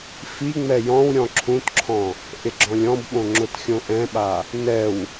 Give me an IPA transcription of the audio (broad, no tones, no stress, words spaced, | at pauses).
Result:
fiŋ͡mɛ jɔ̃wɾʲɔ̃ ǁʰũtǁʰɔ̃ | ʔɪɡ͡ǁɔ̃lʲɔ̃bɓõ ŋ͡ǁʊtxʲõʔɛ̃ɓa | nɛw